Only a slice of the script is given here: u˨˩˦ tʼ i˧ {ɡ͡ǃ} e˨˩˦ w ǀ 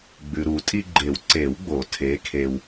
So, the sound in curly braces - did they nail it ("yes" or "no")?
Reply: yes